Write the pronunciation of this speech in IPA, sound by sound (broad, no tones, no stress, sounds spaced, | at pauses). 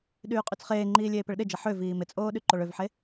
ɗ yː qʼ y t͡s χ eː ŋ͡ǃ iː lʲ eː p ɪ ɭ ɗ ɪ d͡ʒ ɐ ħ ø v iː m ɪ t͡sʼ oː ɗ y ǃ o ɭ ø v ħ e